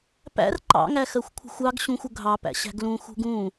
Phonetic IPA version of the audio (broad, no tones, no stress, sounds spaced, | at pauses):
p æ̰ r ǃ ɑ̰ ŋ æ x ɜ xʷ kʷʰ ə̤ xʷ ɑ ɡ ɕ ũ xʷ ʊ ɡʱ ɑ p æ̰ ɕ æ̤ ɡ l ũ x ṳ ɡ ũ